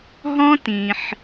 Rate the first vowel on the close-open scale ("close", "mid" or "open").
mid